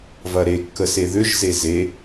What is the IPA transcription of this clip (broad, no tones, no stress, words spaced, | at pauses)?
vɐɾekːəse ðʏʒze ze